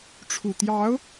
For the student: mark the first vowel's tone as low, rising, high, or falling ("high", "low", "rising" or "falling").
low